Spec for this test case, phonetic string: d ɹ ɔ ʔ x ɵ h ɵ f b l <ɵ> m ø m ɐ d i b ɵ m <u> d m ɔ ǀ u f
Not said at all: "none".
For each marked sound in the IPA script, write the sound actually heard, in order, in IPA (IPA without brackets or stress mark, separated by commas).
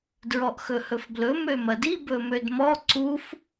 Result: ɵ, ø